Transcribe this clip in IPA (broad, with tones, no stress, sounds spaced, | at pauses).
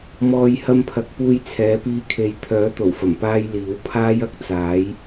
m ɔː˨ j h ɐ˧ m pʰ ɐ˨ k̚ p uː˧ j t͡sʰ ɛː˨˧ p iː˧ kʰ e˨ j t̪ʰ œː˨˥ t̪ o˨˩ w f ɐ˨˩ m p aː˥ j l iː˨˥ w pʰ aː˥ j ɐ˥ k̚ t͡s aː˨˥ j